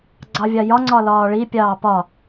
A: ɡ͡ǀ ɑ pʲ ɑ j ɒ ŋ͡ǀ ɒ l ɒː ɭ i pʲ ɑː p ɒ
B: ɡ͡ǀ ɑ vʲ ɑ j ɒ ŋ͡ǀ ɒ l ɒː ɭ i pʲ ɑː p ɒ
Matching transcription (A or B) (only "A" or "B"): B